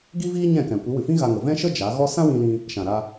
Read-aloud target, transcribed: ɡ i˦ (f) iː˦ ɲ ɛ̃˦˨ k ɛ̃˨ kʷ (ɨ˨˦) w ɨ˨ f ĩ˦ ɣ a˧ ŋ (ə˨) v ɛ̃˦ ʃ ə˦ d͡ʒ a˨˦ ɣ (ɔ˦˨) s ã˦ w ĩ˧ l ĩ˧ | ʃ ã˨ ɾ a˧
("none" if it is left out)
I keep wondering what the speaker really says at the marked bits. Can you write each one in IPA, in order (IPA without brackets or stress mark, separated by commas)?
v, ɨ˨˦, ə˨, ɔ˦